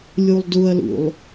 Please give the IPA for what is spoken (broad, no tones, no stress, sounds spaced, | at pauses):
lʲ u lˠ d u ɐ̯ l ṵ lˠ